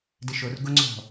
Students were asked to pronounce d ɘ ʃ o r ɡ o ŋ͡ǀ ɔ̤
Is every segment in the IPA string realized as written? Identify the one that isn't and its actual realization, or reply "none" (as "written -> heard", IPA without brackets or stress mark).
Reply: none